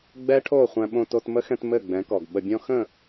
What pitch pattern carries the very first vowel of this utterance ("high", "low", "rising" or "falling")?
high